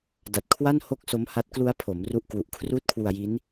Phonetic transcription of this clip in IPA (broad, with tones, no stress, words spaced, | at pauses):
da˨˩t̚kʰwa˥˩n ho˥˩k̚ so˦˥mha˦˥t̚ klu˦˥a̯ pʰo˩˦m ru˥˩ʔ kwu˨˩ʔ kʰruː˥˩t̚kʰwu˧a̯ji˦˥n